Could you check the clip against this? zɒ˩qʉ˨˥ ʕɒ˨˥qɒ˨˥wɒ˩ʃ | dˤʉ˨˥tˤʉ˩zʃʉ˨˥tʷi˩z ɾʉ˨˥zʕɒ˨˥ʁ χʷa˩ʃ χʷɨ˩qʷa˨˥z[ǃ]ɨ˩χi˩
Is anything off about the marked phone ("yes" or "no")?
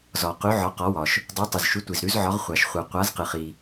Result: yes